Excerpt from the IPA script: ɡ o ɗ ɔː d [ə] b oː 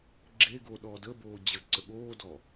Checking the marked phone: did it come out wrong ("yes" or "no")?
no